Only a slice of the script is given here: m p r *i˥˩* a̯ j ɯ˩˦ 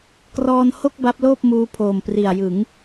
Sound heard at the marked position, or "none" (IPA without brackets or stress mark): i˨˩